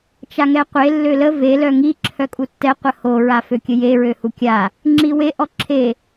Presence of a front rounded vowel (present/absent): present